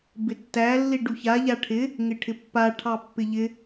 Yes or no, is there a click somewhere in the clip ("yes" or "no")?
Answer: no